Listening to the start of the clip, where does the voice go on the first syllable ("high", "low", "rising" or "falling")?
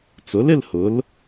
rising